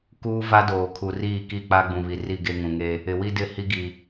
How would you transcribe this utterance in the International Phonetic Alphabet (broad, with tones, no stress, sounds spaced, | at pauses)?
k uː˦ v a˦ d oː˨ kʰ u˨ r iː˦˨ k i˦˨ k͡p a˦ ɡ͡b ũ˨ β i˨ r i˦˨ ɡ e˦ ŋ ũ˨ ŋ e˦ | ɪ˨ w i˦ d ɪ˦˨ h i˦ ɡ i˨